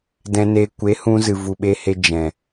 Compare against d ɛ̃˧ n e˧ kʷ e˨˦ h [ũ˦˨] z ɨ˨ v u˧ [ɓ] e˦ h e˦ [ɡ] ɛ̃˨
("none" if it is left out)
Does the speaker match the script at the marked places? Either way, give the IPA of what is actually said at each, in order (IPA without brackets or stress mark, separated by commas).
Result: ũ˧, ɓ, d͡ʒ